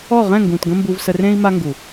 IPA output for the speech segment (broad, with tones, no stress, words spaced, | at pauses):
ɔ˦˨ ʁɛ̃˦˨ŋɡũ˨t ɡə̃˦ mbu˧vsə˧rẽ˦i̯ ma˦ŋɡu˨